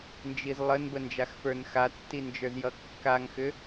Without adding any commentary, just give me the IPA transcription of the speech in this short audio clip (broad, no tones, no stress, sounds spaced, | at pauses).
n d͡ʒ i z lˠ ə n b ə n d͡ʒ a x f ə˞ n x a tː i n d͡ʒ ə˞ z j ʌ kː a ŋ x ʏ